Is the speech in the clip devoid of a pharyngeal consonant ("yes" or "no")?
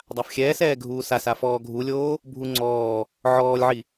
no